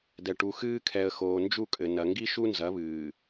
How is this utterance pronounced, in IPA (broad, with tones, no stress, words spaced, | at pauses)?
dɛ˨ʈu˨ xɨː˦kʰɛ˨ə̯xoː˨ nd͡ʒu˦˨kʼɘ˨ nɐ˨ŋɡi˦ ʃu˦nzɐ˨˦βɨː˨